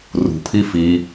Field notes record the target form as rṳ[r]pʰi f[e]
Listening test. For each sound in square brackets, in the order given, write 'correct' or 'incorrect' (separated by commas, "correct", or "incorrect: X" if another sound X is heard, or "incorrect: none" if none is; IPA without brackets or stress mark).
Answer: incorrect: none, incorrect: i